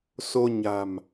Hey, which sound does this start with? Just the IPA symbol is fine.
s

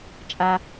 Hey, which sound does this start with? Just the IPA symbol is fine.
t͡ʃʼ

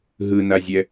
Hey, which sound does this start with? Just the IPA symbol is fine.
ɦ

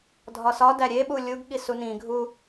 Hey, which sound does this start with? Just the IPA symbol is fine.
dʱ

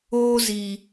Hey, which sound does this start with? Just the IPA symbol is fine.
oː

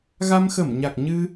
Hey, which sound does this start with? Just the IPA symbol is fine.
ɣ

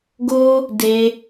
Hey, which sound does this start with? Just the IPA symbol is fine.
ɡ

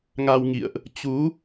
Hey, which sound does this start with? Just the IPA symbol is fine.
ŋ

